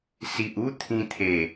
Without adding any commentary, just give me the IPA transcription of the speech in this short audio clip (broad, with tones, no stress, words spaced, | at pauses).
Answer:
si˨ʔu˦ t̪ʰĩ˧t̪ʰe˨˩